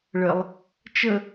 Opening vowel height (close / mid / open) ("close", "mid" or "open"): mid